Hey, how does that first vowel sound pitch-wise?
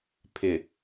low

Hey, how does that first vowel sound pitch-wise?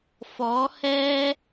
rising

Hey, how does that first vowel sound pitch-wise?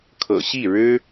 low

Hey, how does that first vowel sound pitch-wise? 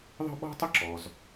high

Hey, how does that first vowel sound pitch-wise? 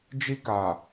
high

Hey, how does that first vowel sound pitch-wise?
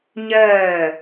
falling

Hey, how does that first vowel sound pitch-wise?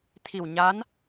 low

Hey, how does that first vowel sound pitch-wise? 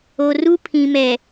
low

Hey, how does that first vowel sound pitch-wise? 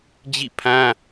falling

